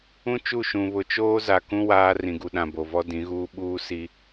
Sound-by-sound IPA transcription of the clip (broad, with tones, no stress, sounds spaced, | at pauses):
ũ˦ t͡ʃ u˦˨ ʃ ũ˨ β ʊ˨ t͡ʃ oː˦ z a˨ k ũ˦ w aː˦ r ĩ˨ ɡ u˨ ɗ ã˨ b o˨ v ɔ˦ d ĩ˨˦ ɣ uː˦ ɓ uː˦ s i˦